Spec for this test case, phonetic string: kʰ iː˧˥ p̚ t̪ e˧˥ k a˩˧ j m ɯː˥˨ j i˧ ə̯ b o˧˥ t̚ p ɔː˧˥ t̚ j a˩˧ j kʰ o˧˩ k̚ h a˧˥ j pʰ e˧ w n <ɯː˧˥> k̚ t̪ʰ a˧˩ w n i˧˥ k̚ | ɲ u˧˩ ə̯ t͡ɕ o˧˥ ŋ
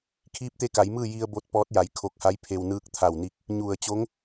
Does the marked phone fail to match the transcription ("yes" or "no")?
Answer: no